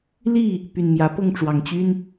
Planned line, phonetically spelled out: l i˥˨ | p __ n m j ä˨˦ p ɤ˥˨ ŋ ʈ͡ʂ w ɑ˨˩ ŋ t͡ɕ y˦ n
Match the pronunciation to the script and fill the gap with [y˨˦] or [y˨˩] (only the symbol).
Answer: y˨˩